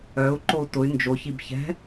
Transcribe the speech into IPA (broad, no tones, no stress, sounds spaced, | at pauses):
œ u̯ ǃ o u̯ t ʊ y̯ n d͡ʒ o ç i b ç ɛ̤